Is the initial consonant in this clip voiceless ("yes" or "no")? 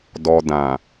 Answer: no